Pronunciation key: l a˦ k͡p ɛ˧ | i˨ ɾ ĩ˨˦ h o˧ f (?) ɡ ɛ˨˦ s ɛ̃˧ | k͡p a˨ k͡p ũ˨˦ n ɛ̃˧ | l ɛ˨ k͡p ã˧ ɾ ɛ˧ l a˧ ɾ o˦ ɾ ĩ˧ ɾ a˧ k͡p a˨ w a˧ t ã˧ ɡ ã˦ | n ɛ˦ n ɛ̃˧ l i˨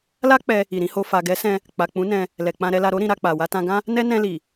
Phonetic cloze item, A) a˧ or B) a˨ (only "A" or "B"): B